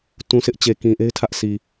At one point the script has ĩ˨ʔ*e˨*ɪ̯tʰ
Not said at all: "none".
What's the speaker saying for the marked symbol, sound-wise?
e˦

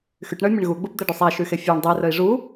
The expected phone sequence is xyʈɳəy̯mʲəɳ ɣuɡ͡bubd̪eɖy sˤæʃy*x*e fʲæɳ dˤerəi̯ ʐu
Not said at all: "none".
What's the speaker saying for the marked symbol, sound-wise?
x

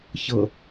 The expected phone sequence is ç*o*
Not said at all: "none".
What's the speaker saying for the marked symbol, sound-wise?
ɤ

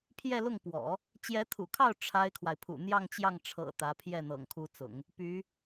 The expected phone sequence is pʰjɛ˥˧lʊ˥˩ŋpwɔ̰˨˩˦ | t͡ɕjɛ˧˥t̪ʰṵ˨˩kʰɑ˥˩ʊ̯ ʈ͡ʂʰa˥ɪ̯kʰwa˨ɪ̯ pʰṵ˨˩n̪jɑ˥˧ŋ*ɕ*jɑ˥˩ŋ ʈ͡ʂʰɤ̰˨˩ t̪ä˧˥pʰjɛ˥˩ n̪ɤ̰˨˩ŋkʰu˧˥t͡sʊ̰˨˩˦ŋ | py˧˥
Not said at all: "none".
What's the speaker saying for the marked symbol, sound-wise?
t͡ɕ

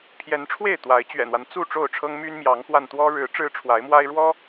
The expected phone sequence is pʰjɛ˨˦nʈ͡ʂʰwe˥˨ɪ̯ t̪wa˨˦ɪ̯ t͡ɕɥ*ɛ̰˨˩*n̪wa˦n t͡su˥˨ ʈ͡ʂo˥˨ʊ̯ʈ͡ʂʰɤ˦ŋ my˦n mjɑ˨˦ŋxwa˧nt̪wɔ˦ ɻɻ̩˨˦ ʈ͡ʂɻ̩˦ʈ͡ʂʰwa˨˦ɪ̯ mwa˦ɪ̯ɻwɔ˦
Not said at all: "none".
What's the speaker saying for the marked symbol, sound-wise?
ɛ̰˨˩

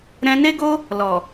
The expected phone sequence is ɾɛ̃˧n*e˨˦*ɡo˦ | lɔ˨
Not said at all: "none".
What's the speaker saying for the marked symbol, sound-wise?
e˦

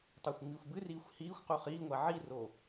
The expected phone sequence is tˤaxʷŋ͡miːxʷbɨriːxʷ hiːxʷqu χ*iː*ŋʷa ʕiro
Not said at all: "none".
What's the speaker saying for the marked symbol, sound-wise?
iː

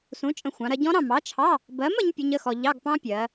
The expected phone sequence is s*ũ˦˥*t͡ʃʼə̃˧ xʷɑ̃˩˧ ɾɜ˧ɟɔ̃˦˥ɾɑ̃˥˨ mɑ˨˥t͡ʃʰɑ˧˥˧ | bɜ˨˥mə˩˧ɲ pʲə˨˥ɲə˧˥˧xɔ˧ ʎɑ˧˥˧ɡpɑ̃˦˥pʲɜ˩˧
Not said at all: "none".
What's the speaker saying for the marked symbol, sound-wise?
ũ˨˥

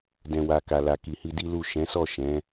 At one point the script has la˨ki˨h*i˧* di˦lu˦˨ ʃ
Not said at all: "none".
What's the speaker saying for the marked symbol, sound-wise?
i˧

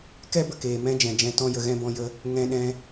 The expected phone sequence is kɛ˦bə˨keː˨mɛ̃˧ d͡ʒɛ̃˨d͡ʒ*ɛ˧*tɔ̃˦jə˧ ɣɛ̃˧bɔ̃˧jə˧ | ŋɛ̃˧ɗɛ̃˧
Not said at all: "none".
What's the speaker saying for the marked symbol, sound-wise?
ɛ̃˧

